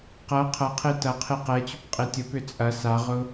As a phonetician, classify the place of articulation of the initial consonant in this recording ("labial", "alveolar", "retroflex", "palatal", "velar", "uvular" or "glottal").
uvular